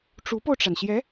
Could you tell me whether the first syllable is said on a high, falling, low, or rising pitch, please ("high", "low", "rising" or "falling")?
rising